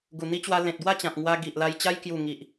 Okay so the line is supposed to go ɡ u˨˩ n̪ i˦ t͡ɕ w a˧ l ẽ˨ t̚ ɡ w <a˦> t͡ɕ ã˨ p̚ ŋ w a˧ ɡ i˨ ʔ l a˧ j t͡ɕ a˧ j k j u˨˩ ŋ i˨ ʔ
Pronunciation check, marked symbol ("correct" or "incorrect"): incorrect